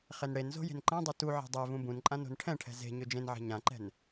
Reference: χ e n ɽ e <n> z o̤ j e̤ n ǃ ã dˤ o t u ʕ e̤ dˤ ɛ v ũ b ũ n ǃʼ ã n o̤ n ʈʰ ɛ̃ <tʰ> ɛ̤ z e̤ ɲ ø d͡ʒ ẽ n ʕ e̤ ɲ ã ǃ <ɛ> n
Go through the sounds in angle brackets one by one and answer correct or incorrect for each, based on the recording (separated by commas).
correct, incorrect, incorrect